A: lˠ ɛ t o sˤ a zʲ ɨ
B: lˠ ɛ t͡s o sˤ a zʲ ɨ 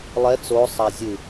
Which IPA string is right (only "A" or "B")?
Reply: B